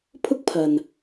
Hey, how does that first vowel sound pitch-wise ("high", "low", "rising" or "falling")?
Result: high